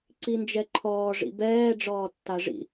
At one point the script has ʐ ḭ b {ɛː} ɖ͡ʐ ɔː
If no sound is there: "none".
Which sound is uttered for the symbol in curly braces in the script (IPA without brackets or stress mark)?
ɛː